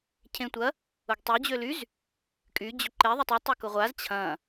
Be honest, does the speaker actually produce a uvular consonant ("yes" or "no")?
yes